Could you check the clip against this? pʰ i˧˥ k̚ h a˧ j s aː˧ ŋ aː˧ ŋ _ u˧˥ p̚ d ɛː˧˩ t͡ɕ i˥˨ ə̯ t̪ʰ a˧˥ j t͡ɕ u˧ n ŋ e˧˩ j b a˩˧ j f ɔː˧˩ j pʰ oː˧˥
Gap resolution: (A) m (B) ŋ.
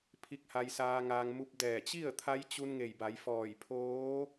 A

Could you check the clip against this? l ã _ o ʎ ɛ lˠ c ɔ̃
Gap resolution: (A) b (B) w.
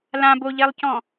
A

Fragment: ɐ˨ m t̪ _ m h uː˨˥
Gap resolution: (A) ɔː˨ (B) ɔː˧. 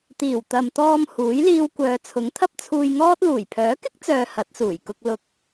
B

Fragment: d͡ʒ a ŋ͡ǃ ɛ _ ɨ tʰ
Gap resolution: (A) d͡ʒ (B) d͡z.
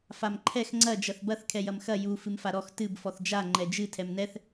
A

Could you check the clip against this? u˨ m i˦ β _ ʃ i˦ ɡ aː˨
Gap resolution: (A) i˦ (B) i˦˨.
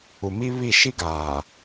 B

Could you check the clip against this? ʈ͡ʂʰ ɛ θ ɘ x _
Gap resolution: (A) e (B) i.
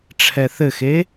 A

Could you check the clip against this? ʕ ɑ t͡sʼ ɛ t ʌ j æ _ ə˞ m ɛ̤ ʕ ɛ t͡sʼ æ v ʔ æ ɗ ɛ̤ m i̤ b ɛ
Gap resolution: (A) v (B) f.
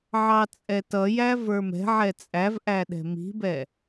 A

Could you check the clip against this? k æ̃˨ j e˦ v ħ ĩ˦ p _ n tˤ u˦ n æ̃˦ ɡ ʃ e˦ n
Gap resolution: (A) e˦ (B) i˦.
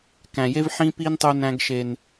B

